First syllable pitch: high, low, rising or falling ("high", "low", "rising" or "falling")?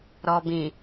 low